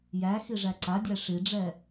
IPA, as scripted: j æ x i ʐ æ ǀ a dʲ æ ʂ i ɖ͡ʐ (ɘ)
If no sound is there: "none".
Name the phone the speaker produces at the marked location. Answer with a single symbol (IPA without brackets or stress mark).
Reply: ɛ